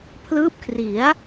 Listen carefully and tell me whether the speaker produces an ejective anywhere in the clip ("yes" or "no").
no